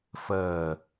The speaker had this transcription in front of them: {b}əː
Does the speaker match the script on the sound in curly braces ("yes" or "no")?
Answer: no